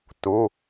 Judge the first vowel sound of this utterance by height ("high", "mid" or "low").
high